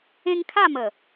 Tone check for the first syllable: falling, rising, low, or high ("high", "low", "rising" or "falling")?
high